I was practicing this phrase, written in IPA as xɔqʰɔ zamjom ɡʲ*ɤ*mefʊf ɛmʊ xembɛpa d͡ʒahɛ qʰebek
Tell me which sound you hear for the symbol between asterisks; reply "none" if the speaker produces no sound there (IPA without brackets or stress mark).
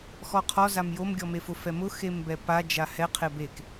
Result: ɔ